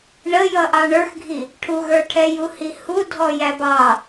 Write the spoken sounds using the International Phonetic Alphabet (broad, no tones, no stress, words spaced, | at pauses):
ɳəjʌ ʔɑɳə˞xɡʱi | ʈʰuɣə˞ʈʰɛ juhihudʱɔ jæbɑ